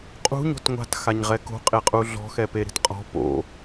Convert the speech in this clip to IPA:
qʼṳɲo̤t ŋʷa̤txaɲʁɛ ko̤qʼeqʼu ɮɔ̤xɛpeɾi̤t qʼɔ̤ po̰

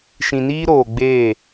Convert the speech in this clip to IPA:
ʃĩ˨niː˦ɾoː˨ɡ͡beː˦˨

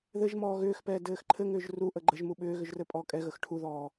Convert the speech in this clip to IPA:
ðɘʒmɔː ɣʏːxpɛː dɘːxǃʰɘŋʏːʒ ruʔə ɡ͡ǃəʒmu ɓʏːɣʏʒ rɘpʼɔːkʼɛɣəx ʈʰuðɔː

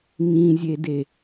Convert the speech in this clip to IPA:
ŋĩzʲede

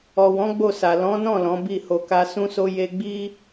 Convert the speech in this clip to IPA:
ɔ˨wɔ̃˨˦ ɡ͡bo˦˨sa˨ lɔ̃˨˦nɔ̃˦˨ lɔ̃˨˦bi˦˨ho˧ka˦ sũ˦so˦ je˦ ɡ͡bi˦

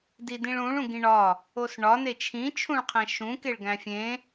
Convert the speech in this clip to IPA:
didĩɭũɭ ũɡĩɳɒ | osɳɒ net͡ʃʰĩ t͡ʃʰũɭqʰæ̃ʃũ keɭɡæ̃fʲẽ

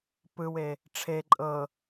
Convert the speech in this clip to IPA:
pɯwe | ʈ͡ʂʰe ǃʼɤ

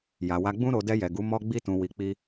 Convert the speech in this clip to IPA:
ja˨wa˧ɡ͡bũ˦ɾo˧ dɛ˧jɛ˨ɡu˨˦ mɔ˦ɡ͡bi˦tũ˧ wi˧k͡pi˦

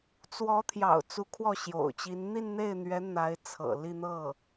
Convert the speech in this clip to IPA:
t͡swɔ˧˥t̪ʰjɑ̰˨˩ʊ̯ t͡su˧˥kʰwɔ˥˩ɕjo̰˨˩ʊ̯t͡ɕi˧˥n n̪i˥˧nn̪e˥˩ɪ̯n̪ɥɛ˧˥ n̪a˧˥ɪ̯t͡sʰɤ̰˨˩li˥˧ n̪ɤ˥˩

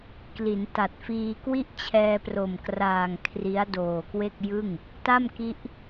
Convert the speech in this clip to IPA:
kli˩˦nta˨˩t̚fiː˧ kwi˥˩ʔt͡ɕʰɛː˧pro˨˩mkraː˨˩ŋ kʰri˦˥a̯ doː˨˩kwe˥˩k̚jɯ˥˩ŋ | ta˥˩mki˦˥ʔ

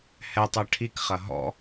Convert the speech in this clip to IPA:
hɛtˤɐ ʈʰikχɐ ɦɔ̰

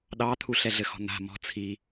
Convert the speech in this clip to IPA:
ɗɑt̪ʰuɬɛ ɮɘxɔ̤n̪a̤ mɔ̤t͡sʰi

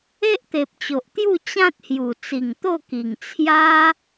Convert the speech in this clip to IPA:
e˦ʔt̪e˨p̚t͡ɕo˨ʔt̪ju˥˧ t͡ɕã˦t̚hju˨˩ t͡si˨˩ŋt̪o˥˧ki˨˩ŋ t͡sʰja˦

